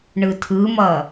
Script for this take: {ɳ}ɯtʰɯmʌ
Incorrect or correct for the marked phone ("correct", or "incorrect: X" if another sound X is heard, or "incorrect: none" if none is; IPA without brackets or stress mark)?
correct